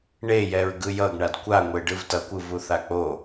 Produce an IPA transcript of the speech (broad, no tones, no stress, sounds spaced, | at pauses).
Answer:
ɳ e j ɛ ɹ ɡ ɯ j ʌ ɡ ɳ a d kʷ a ŋʷ e ɖ ɯ v t ʌ kʷ ɯ v u θ a k͡p o